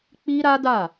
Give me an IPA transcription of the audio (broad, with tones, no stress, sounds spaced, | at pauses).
k͡p i˦ ɾ a˦ d a˦˨